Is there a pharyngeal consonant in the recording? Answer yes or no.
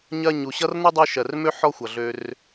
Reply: yes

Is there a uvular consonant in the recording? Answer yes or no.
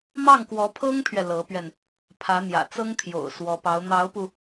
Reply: no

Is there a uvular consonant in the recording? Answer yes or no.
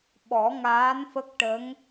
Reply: no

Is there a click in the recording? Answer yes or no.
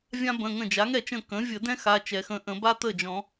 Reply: no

